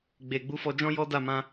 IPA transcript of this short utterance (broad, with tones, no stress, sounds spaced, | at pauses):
ɡ͡b e˨ ɡ͡b u˨˦ f ɔ˧ d͡ʒ ɔ̃˦ j ɔ˦ d a˦˨ m ã˧